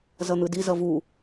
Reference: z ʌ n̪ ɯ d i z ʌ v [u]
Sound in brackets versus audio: correct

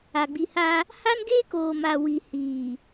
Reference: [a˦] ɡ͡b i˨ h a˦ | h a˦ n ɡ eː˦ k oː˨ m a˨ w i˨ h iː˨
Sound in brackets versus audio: incorrect: a˨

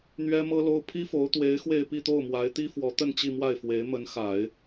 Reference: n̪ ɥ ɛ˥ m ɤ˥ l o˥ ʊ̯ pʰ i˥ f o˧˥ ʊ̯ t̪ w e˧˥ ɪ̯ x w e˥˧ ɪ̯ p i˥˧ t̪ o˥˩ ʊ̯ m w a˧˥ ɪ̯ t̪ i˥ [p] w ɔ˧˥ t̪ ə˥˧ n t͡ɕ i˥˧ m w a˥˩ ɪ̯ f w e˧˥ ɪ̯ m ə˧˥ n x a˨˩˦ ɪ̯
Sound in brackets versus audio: incorrect: f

